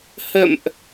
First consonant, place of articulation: glottal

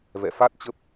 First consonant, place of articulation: labial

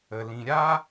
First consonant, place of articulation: alveolar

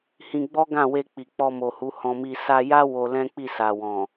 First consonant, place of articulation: glottal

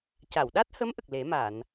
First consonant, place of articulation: palatal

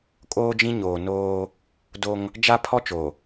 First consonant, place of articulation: velar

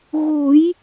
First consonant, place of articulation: velar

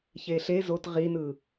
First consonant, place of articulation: palatal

